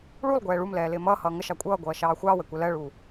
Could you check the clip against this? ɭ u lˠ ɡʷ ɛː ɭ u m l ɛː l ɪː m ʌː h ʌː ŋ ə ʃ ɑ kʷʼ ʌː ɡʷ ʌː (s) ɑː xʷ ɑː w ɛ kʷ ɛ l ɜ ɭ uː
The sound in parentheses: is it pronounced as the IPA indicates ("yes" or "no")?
no